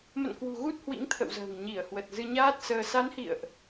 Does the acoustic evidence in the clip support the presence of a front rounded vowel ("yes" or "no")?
no